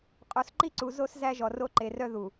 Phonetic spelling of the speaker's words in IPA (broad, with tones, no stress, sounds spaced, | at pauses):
qʼ o˨ s ǃ i˦ ǀ u˨ z o˦ s z æ˦ ʒ ɔ˨ r o˦ ǃ e˨ r œ˦ ð u˨